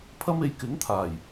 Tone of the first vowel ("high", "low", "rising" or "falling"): high